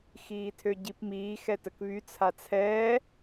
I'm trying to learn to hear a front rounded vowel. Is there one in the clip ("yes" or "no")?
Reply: yes